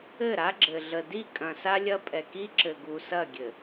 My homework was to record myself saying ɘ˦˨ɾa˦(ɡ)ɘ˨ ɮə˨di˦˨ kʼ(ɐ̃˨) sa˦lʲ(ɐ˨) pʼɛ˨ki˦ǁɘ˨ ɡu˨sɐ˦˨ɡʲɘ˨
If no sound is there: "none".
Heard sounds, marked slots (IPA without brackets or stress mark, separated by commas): ɡ͡ǁ, ɐ̃˨, ɐ˦